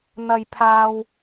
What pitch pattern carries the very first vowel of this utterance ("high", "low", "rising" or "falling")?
low